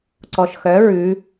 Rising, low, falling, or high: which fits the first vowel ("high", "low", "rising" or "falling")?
low